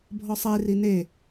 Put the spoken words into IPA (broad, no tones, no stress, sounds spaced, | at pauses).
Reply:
bʱ ɔ sˤ e r i n e